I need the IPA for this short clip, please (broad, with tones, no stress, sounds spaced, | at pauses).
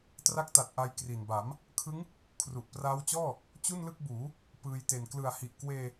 t r a˦˥ k̚ t a˨˩ t̚ ʔ a˧ j k r i˨˩ n b a˩˦ m | kʰ ɯ˦˥ ŋ | kʰ r u˨˩ ʔ p r aː˦˥ w t͡ɕ ɔː˥˩ | t͡ɕ u˥˩ n l ɯ˥˩ k̚ b uː˩˦ | p ɯː˧ j t e˨˩ n k l ɯ˨˩ a̯ h i˨˩ ʔ k w eː˧